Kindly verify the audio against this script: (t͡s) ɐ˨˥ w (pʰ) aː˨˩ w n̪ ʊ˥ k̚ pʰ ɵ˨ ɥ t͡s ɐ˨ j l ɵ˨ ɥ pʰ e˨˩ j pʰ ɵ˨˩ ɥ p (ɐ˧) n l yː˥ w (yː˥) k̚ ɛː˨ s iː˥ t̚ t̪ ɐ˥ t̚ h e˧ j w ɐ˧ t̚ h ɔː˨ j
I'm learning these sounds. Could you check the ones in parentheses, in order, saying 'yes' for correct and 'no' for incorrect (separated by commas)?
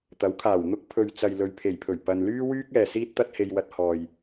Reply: no, no, no, yes